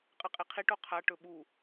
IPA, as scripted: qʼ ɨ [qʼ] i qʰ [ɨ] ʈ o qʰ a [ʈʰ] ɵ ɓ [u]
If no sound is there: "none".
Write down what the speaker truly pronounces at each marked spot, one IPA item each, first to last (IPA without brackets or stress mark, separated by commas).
qʼ, i, ʈ, u